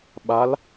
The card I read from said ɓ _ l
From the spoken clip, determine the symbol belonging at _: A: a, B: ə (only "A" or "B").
A